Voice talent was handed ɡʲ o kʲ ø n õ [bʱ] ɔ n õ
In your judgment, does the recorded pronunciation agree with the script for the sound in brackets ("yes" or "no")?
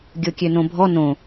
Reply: yes